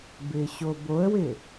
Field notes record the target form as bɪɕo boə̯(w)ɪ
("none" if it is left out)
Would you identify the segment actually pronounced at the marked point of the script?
w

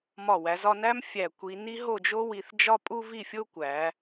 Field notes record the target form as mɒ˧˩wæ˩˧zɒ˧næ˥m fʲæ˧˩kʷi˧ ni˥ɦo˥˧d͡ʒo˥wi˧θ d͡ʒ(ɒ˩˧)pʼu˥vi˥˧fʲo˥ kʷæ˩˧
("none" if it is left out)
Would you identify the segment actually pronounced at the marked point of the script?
ɒ˥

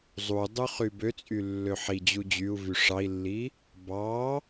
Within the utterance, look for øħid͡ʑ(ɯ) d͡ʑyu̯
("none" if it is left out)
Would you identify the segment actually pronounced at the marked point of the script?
u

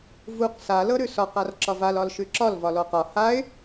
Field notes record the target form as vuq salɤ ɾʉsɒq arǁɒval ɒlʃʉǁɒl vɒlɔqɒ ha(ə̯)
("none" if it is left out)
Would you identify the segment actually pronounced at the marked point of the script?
ɪ̯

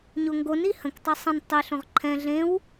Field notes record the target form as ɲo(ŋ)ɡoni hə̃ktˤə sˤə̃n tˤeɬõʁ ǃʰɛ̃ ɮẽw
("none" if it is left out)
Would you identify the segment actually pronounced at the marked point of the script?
ŋ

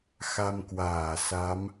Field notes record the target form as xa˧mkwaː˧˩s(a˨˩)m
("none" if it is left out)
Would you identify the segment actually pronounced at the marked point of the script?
a˨˦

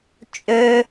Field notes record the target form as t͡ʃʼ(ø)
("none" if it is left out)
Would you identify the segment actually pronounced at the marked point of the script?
ø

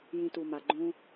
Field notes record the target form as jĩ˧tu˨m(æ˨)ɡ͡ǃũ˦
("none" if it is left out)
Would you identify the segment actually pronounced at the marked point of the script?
a˨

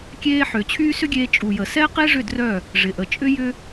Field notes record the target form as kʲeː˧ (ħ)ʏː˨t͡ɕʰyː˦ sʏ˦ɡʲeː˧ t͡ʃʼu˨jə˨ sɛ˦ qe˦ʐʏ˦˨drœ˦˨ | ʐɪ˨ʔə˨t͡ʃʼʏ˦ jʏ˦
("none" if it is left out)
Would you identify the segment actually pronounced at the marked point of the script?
ħ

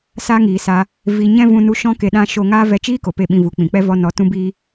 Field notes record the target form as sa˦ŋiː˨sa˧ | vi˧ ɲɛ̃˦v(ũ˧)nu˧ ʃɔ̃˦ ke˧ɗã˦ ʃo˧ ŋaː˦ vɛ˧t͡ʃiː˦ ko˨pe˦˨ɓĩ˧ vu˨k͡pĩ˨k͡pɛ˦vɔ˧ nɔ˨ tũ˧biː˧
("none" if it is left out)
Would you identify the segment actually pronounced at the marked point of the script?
ũ˧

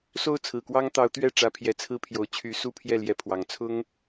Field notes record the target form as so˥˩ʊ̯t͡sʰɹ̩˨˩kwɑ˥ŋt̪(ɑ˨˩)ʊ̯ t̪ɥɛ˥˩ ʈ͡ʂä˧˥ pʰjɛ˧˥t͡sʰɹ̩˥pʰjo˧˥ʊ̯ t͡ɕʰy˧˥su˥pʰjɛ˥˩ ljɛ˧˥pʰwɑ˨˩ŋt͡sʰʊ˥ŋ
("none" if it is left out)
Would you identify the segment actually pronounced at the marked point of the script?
ɑ˧˥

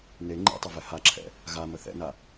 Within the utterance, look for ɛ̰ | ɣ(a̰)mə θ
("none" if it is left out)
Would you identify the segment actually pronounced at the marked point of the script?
a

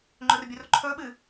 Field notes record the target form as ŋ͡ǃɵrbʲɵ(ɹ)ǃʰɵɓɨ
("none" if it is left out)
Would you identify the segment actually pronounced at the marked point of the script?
r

